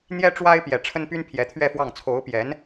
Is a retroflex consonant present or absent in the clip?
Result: present